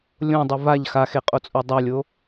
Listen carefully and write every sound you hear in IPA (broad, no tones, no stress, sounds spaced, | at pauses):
lʲ õ dˤ ʌ v a ʎ x a x e qʼ o t͡sʼ o dˤ a lʲ o